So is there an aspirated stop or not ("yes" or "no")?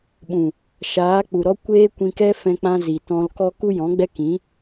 no